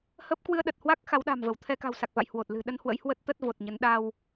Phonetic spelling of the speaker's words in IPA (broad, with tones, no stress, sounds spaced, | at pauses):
h ə˦˥ p̚ k w ɨ˧ ə̯ ɗ ə˨˩ t̚ h w a˦˥ k̚ x a˨˦ w ɗ a̤˨˩ m v ə˧˩ w t̪ʰ ɛ˧ k a̤˨˩ w s a˨˩ k̚ v a̰˧˨ j h w o˨˩ t̚ l ɨ̤˨˩ ɗ ə˧ n h w ə̰˧˥ j h w ə˦˥ t̚ t̪ ə˦˥ t̚ v o˨˩ t̚ ɲ ə˨˦ n ɗ a˧ w